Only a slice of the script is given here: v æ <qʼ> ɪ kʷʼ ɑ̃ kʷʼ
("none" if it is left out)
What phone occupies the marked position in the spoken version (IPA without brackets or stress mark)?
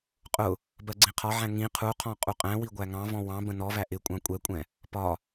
ʔ